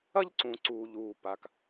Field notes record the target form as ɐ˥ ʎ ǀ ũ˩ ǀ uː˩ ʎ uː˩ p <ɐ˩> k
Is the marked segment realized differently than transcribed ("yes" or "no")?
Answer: yes